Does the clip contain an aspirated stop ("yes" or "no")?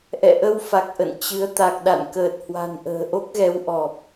no